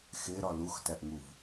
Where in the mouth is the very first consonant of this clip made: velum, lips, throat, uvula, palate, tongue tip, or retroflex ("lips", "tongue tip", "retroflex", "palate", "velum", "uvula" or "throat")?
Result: velum